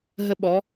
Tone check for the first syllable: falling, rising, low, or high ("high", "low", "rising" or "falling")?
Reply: high